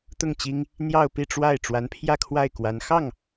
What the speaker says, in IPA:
t̪ ʊ˥˩ ŋ t͡ɕ i˥ ŋ | n̪ j ɑ˥˧ ʊ̯ p i˥˧ ʈ͡ʂ w a˥˩ ɪ̯ ʈ͡ʂ w a˧˥ n pʰ j ä˥˧ kʰ w a˥˩ ɪ̯ k w a˧˥ n x ɑ˥˩ ŋ

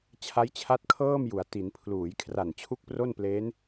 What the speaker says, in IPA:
t͡ɕʰ a˦˥ j t͡ɕʰ a˦˥ t̚ kʰ ɤː˥˩ m j u˩˦ a̯ t i˩˦ n pʰ l uː˩˦ j kʰ r a˨˩ n t͡ɕʰ u˥˩ k̚ p r o˥˩ n p l eː˦˥ n

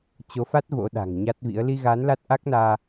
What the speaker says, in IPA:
t͡ɕ o˨˦ f a˦˥ t̚ v o̰˧˥ ɗ a̤˨˩ ŋ ɲ a˦˥ t̚ v ḭ˧˥ ə̯ l i˧ ɣ a˨˦ n l a˦˥ t̚ ʔ a˦˥ k̚ n aː˧

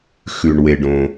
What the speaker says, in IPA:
x ʉ˩ ɳ w e˩ ɖ õ˩

